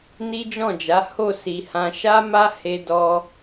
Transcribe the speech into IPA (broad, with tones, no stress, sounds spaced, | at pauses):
n i˦ d͡ʒ ɔ̃˦˨ d͡ʒ a˨˦ h o˦˨ s i˨ h ã˧ ʃ a˦ m a˦ h e˧ d ɔ˧